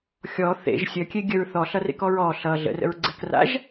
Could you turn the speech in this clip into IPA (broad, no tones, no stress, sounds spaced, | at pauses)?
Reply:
xʲ ɔ θ ḛ ʒ sʲ ə kʲ e ɡʲ ə ɹ θ ɔ ɬ ʌ r ḛ k ɔ ɹ ɔ ɬ ʌ ɮ ə̰ r ə̰ ɹ ɡ͡ǀ ɛ k r a̰ ʒ